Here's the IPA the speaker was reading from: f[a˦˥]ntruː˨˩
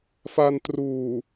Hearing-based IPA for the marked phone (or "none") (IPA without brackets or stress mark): a˧